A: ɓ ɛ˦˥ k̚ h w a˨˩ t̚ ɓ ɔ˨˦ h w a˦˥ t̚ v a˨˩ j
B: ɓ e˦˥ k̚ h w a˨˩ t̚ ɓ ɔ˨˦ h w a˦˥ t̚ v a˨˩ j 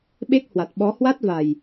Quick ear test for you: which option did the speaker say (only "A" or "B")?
B